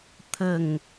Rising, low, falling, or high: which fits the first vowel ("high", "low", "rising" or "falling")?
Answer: low